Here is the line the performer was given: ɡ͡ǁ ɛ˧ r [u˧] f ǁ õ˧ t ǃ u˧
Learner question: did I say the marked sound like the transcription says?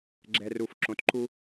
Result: yes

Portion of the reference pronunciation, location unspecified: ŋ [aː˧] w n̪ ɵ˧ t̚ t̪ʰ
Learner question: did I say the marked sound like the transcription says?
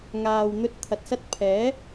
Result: no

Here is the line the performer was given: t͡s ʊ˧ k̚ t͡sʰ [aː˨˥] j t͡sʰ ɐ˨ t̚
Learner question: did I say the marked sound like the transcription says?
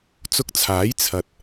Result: yes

